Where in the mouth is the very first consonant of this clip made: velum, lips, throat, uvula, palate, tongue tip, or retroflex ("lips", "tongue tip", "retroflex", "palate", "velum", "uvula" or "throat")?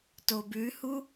tongue tip